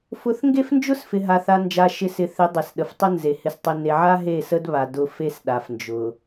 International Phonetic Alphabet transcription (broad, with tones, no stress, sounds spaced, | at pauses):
f ʊ˨˦ θ ŋ ɡ e˦ f n d͡ʒ ʊ˦ s f ɪ˨ ɦ a˨ θ a˨ n d͡ʒ a˨ ʃ ɪ˨ s ɪ˨ θ ɪ˨˦ dˤ e˨ s ɗ ə˨ f tˤ ə˦ n z e˨ h ɪ˨ s tˤ ɪ˨ n e˨ ʕ a˦ ɦ e˦˨ s ə˦ d β a˨ d ʊ˨ f e˦ s ɗ a˨ f n d͡ʒ ʊ˨